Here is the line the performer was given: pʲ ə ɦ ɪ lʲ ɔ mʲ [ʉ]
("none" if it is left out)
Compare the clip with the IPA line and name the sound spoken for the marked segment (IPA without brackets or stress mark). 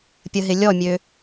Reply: ø